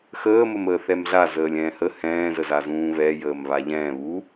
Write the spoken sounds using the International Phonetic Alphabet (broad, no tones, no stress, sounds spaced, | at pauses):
x əː m ə m əː θ ɛ m ɮ a z əː lʲ ɛ̃ː h ə h ɛ̃ː z ə z a z ũː β ɛ j əː m β a ʎ ɛ̃ː β u